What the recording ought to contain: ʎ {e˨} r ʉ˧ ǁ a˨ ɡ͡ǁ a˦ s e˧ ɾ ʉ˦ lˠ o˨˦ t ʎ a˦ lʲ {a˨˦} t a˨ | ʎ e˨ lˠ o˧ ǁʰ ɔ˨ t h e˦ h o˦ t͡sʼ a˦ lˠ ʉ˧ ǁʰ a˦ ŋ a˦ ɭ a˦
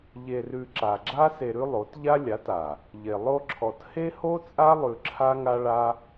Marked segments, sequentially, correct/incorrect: incorrect, correct

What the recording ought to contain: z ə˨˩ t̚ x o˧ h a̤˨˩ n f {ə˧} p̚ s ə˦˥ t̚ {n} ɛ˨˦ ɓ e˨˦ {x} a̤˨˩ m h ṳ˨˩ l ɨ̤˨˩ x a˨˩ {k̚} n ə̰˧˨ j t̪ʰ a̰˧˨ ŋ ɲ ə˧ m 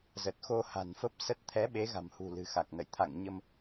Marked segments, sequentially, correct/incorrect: incorrect, incorrect, incorrect, correct

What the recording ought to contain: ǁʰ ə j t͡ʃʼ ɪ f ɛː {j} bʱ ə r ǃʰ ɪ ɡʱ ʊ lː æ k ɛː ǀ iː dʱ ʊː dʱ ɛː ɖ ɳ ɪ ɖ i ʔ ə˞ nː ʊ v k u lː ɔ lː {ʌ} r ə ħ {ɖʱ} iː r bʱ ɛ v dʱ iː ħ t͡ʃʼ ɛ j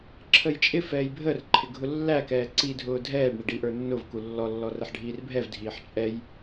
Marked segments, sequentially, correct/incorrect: correct, incorrect, correct

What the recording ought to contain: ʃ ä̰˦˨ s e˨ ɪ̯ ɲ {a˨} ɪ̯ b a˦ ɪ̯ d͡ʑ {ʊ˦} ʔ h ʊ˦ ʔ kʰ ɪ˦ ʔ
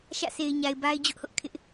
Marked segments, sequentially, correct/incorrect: correct, correct

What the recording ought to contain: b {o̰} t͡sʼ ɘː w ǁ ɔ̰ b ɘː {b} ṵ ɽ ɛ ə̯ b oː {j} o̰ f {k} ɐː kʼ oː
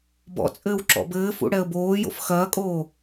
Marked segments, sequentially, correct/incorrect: incorrect, incorrect, correct, incorrect

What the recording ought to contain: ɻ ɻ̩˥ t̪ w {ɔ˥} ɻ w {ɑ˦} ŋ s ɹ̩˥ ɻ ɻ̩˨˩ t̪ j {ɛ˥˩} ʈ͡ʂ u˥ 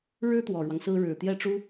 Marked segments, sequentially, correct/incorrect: incorrect, correct, correct

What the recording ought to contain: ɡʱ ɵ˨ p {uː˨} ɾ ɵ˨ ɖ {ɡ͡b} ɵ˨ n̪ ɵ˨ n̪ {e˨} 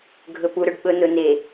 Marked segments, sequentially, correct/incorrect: incorrect, incorrect, correct

